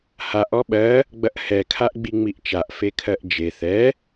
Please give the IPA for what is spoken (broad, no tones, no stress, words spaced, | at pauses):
haʔ ɔɓɜ | ɡ͡bɐʔhɛ kʰaʔɡ͡biŋ͡miʔt͡ʃaʔ fekʰɜʔd͡ʒe θɛ